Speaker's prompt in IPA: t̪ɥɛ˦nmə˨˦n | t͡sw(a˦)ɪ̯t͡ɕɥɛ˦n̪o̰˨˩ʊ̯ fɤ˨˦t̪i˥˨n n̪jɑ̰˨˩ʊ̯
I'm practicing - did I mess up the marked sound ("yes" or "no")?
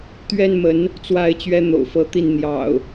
no